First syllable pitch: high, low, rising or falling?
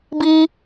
high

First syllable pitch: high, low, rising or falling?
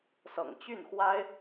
low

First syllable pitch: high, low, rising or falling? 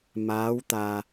rising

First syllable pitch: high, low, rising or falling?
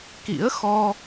rising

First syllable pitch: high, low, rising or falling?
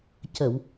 low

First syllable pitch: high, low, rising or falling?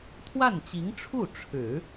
falling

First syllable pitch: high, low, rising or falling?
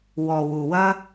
low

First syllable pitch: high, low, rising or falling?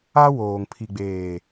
high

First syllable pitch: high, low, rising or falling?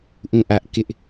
falling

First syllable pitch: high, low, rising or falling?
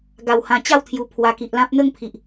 low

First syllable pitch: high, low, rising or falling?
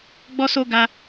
high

